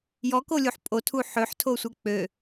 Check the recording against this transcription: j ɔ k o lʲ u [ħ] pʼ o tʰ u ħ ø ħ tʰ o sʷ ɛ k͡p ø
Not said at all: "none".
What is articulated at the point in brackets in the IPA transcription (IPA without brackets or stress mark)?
ħ